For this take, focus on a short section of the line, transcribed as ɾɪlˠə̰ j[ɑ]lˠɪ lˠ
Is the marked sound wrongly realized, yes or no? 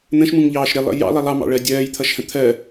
yes